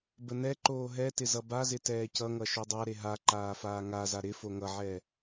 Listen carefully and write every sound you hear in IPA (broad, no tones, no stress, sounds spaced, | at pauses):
b ə n ɛ ǃ oː ɦ ɛ t ɪ z ʌ b a z ɪ t ɛː c ʌ ŋ ʌ ʃ o dˤ a ɾ e ɦ a ǃ aː f aː ŋ a z a ɾ ɪ f o ŋ ʌ ʕ ɛ